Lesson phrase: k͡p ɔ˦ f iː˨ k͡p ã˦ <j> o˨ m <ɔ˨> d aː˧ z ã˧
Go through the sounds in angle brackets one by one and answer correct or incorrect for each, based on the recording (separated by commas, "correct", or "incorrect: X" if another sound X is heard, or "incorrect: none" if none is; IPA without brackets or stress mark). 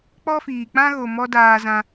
incorrect: ɣ, incorrect: ɔ˦